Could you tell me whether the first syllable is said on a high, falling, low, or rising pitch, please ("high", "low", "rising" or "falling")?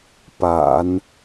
low